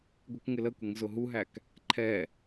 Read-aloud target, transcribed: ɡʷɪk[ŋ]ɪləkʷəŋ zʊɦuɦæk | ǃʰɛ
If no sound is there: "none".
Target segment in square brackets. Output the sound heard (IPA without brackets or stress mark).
ŋ